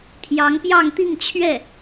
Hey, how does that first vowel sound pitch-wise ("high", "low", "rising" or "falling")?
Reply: rising